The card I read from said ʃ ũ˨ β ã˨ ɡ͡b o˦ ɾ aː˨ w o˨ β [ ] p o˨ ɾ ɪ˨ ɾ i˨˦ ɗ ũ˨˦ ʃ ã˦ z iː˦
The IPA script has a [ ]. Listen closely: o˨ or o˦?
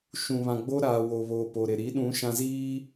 o˨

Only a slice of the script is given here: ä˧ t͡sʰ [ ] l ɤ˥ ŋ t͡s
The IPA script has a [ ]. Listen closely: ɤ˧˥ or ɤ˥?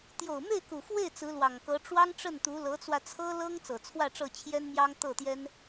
ɤ˥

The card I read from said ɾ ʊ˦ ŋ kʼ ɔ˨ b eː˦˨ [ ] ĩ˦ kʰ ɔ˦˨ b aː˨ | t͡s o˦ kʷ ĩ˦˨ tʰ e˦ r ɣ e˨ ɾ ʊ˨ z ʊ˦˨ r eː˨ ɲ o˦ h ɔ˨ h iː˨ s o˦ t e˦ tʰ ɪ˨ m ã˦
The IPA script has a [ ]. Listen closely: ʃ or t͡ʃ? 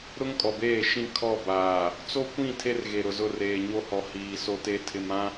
ʃ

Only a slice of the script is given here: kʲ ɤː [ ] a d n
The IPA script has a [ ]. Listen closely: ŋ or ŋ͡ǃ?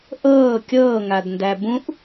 ŋ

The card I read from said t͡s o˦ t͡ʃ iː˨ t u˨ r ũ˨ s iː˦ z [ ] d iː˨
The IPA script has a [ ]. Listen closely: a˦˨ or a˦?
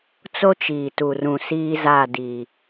a˦˨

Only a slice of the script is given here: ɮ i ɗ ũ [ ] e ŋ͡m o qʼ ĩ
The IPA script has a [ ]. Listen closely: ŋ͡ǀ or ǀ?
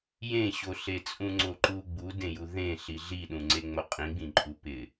ŋ͡ǀ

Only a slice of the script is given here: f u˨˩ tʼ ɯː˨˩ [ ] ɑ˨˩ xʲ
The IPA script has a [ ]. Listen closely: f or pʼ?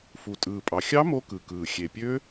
pʼ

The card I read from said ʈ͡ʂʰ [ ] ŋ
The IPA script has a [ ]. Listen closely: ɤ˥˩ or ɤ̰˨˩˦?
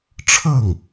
ɤ˥˩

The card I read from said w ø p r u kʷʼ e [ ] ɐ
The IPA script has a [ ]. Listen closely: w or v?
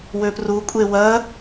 w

